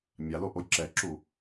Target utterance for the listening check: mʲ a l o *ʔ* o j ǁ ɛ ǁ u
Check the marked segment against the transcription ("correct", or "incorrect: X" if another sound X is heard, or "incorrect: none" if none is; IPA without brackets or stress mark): correct